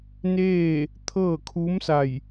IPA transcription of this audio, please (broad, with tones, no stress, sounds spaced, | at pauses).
n eː˥˨ | t̪ʰ ɤː˥˨ kʰ u˧˥ m s a˧˩ j